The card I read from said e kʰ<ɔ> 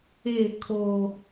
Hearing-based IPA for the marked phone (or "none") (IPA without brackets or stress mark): o